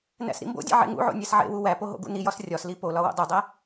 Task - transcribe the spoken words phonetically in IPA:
n æ̰ s ɾ ḭ m b o̰ dʲ ḛ ʕ ḛ ŋ ṵ ʕ o̰ nʲ æ s ʕ ḛ w u w æ p o ɦ o̰ ɡ ṵ n i j ɒ s rʲ ɒ s l i p o l ɒ w o̰ dˤ u dˤ æ

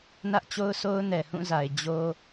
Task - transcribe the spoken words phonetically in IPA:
n ä˦ ʔ t͡ɕ o˦ ʊ̯ s o˦ ʊ̯ n ɛ˨ h ũ˦˨ z a˨ ɪ̯ d͡ʑ o˦

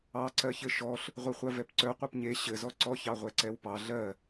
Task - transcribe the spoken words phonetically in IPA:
ɑ ǀ ɜ ç ɘ ʃ ɔ ɬ | ʁʷ i χʷ ɜ v ɛ p ǀ œ qʷ œ p ɲ e ɕ ɘ z ɔ ǀ ɔ ç ɑ ʁʷ ɛ ǀ ɛ w p ɑ ɮ ɜ

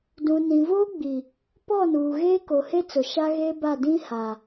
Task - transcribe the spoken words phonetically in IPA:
d ũ˨ n ĩ˨ v oː˦ ɡ͡b i˨ | p ɔ˦˨ n uː˨ ɣ eː˦ k o˨ h e˦ t͡s ʊ˨ ʃ a˦ ɣ eː˦ b a˦˨ d ĩ˦ h a˨

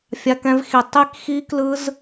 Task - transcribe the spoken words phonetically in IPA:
fʲ a˧ k ɛ̃˧ v x i˨˩ tˤ i˧ k x i˧ k l ɯ˧ z

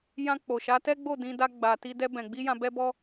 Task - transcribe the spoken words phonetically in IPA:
j ã˧ k͡p o˨ ʃ a˨˦ t ɛ˦ ɡ͡b o˦˨ d ĩ˧ d a˦ ɡ͡b a˧ t i˧ d ɛ˧ b ɛ̃˨ ɡ͡b i˧ j ã˧ b ɛ˦ b ɔ˦

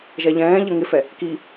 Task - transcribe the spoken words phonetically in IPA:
ʒ ɛ ʎ ɛ̃ː ʎ ə ŋ ɪ f ɛ | k i

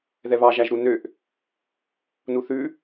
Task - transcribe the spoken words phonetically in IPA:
ð ɛ β ɑ ʒ æ ʒ ɾ u n ø ʔ | n u θ ʉ

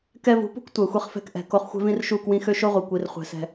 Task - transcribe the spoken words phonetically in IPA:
k ɛ˧ v ṳ˨˦ p ṳ˦ k tʷ ɛ˨ xʷ i˧ χ f ɛ̤˦ k ʔ ɛ̤˨ k o˧ χ xʷ ɛ̤˦ v ĩ˦ r ʃ u˦˨ k w ĩ˧ x ø˦ ʃ o˦ ʁʷ i˨ kʷ i˧ r χʷ ɛ̤˧ s ɛ̤˧

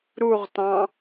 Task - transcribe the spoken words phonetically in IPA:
ɾ u ʁ t ɑ̃

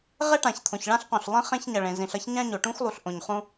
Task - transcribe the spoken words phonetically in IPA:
ʁ e˥ ʈ ã˩ ç t̪ʰ õ˩ ç ɭ ã˥ ɬ q õ˩ ɬ lˠ ɛ̃˥ χ ẽ˥ ç ɲ ʌ˩ ɭ ẽ˩ z ĩ˩ ɬ ʌ˥ ç ɲ ã˥ ɲ o˩ ʈ ũ˥ x lˠ u˩ ɬ ʔ õ˩ ɲ χ ũ˥

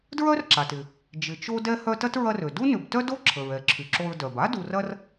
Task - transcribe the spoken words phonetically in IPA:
d ɹ œ˥ r ǁ a˩ t ɪ˩ | d͡ʒ ɪ˨ t͡ʃ o˥ d ɛ˥ h œ˦ t ɐ˥ t ɹ ɐ˦ r ø˩ d u˥ n ʏ˨ b t œ˥ d o˥ ǁʰ ə˩ ɹ ɛ˩ ǁʰ y˩ ǁ o˨ ɹ d œ˩ b a˥ d u˨ r ɐ˦ r

